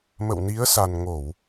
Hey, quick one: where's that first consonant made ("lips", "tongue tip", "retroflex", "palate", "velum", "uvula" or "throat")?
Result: lips